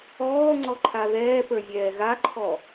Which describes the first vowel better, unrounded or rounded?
rounded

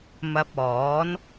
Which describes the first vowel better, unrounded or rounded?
unrounded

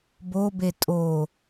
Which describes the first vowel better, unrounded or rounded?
rounded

